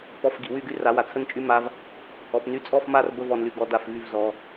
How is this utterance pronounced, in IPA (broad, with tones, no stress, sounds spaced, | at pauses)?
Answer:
p ɔ˨˦ f ɡ i˨ w y˦˨ ɡ y˦ r a˨˦ w a˨ t͡sʰ ə˦ n t͡ʃʼ y˦ m a˦ v | ɔ˨ p n y˧ t͡sʼ ɔ˦˨ f m a˦˨ r b ə˦ v ɔ˧ n l y˧ ɡ ɔ˧ d a˦˨ f v y˦˨ v z ɔ˧